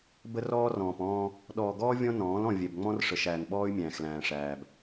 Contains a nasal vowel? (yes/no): yes